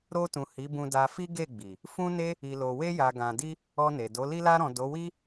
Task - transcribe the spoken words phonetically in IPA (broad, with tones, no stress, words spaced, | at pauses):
ɾo˧tũ˨ hi˨˦bũ˧da˧fi˦ ɡe˦˨ɡ͡bi˨ | fũ˦ne˦ | i˨lo˨we˧ja˨ ɡã˨di˧ | ɔ˧ne˨do˨˦ li˧la˧ɾɔ̃˨ do˨˦wi˦